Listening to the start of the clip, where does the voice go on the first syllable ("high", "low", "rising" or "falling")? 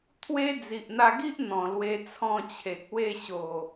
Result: high